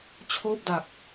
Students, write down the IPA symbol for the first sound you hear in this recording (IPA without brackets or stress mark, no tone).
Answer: t͡ɕʰ